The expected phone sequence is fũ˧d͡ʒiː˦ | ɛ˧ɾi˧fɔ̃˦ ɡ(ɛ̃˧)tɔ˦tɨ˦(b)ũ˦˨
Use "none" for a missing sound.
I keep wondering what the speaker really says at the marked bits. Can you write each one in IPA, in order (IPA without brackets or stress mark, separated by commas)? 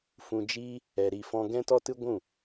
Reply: ɛ̃˦, ɡʷ